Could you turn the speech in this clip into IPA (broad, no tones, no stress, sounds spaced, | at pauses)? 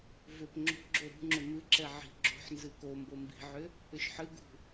v ʏ p ŋ͡ǁ o̤ ɡ͡ǁ o ɾ ṳ ŋ͡ǁ ʏ m ɨ ǁ ɛ ʕ i̤ ɡ͡ǁ o̤ ħ n z ɨ k o m b o m b i̤ ʕ ʏ | ʏ ʃ ħ ɨ ɡ ṳ